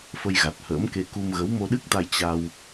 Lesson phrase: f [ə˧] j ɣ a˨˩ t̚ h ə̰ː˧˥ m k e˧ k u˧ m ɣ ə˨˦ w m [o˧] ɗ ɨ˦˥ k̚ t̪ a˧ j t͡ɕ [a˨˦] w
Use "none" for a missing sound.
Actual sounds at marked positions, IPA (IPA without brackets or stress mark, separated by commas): ə˧, o˧, a˧